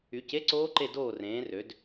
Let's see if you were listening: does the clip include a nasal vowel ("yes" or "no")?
yes